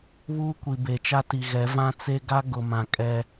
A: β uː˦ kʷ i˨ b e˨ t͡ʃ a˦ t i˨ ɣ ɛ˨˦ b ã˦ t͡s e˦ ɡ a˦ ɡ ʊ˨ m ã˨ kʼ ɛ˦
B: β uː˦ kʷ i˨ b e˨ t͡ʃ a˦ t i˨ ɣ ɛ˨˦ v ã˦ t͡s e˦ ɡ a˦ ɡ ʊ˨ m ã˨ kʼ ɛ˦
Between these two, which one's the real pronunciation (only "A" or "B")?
B